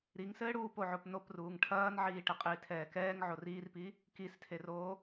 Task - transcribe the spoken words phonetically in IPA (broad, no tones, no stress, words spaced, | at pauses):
ɾiŋsɘːɽuː poʕopnop ruːŋʈʰɐːnʕiːʈɘ qʼiːtʰɛːkɛːŋ ʕoriːrpi | kistʰeroː